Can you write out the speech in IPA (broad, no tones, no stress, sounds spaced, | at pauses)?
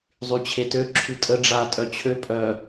zˤ y t͡ɕʰ e t ø ǁʰ y tʼ ə ɖ͡ʐ a tʼ œ t͡ɕʰ ø pʼ œ